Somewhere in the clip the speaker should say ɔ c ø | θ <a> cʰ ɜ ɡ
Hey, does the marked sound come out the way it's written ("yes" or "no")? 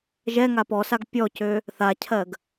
yes